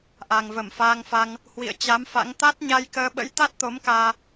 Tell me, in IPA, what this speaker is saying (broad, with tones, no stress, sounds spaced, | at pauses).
ʔ a˨˩ ŋ v ə˧˩ m f aː˧ ŋ f a˧ ŋ | h w ḭ˧˨ ə̯ t͡ɕ a˨˦ m f a̰˧˥ ŋ t̪ a˦˥ t̚ ɲ a˧ j k əː˧ ɓ ə̰˧˥ j t̪ a˦˥ t̚ t̪ o˨˦ m k aː˧